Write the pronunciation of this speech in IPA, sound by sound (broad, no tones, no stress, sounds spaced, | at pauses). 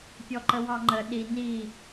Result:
pʲ ɔ ǃ ə w ɑ ŋ͡ǃ ə ɗ i n i